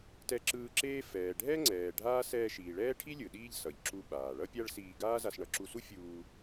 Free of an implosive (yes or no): no